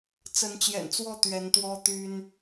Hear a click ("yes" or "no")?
no